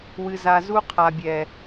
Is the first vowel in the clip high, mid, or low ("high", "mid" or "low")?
high